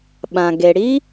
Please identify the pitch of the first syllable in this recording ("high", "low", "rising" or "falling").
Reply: low